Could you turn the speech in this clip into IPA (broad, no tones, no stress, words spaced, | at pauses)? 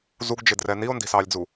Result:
zuɡd͡ʒɪdrɛ nio̯ndi̤sɑːlʲd͡zu